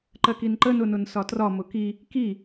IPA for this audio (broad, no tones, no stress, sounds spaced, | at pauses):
ǃ ɜ k i n ǃ ə n ʊ n ʊ n s ɒ t r ɒ m ʊ k i | k i